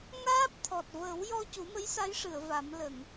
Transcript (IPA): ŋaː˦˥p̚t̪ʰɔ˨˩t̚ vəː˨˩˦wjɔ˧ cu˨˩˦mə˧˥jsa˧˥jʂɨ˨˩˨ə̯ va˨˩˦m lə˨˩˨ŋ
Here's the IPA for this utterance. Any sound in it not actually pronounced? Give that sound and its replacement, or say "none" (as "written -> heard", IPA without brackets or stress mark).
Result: none